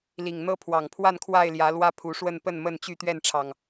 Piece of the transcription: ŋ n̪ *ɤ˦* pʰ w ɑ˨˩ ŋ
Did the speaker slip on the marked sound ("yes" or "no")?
no